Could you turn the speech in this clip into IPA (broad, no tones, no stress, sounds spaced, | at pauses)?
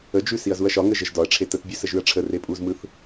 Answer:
ə d͡ʒ ʉ s i ɐ̯ z u ɐ̯ ʃ ɒ ŋ ə ʒ ə ʒ d ɒ ɐ̯ ʈ͡ʂʰ e t ə t bʲ ʉ s ə ʒ ʉ ɐ̯ ʈ͡ʂʰ ə r e pʼ u z m ɯ θ